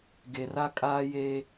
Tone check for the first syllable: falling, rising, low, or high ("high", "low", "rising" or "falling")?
low